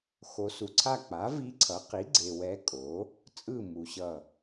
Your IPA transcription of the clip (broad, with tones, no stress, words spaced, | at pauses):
xo˨su˨ǀʰa˦˨k͡pa˩˥ vi˧˥ǀʰʌ˩˥qi˩˥ɡ͡ǀe˨ wɛ˧˥kʼo˩˥ | t͡sʼɯ˦˨ mu˨ɕʌ˦˨